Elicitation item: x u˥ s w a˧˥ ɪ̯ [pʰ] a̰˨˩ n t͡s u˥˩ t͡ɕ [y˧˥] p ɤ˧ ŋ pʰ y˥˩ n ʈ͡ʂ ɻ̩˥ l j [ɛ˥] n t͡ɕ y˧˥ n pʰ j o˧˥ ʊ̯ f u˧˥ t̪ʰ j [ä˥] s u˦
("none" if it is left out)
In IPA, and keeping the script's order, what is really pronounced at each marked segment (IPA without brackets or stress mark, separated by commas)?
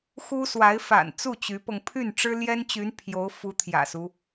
f, y˧˥, ɛ˥, ä̰˨˩